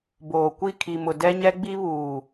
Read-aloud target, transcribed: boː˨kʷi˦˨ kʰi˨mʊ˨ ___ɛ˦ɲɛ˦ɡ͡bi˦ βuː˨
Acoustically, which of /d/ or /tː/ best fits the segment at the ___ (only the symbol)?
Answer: d